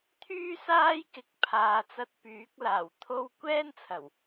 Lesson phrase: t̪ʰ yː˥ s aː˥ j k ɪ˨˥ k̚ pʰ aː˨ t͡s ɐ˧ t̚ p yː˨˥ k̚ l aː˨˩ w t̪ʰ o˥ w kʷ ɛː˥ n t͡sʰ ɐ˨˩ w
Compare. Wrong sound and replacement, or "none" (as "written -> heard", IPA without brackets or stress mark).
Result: none